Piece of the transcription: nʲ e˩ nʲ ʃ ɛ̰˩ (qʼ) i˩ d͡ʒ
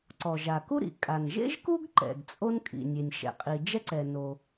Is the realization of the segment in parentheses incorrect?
no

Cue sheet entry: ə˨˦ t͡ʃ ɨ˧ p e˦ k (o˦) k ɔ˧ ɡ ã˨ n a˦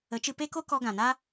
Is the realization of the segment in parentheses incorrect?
no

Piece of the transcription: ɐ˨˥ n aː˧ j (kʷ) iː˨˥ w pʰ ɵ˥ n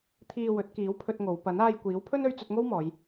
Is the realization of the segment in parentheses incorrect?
no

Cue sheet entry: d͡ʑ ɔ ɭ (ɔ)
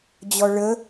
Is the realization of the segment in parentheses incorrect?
yes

